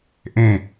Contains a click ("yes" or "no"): no